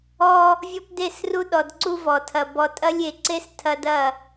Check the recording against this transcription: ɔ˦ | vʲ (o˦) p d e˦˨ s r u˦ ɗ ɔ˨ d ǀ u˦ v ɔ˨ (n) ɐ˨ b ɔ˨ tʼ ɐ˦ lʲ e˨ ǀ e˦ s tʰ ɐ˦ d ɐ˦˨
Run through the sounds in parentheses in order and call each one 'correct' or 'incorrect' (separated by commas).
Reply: incorrect, incorrect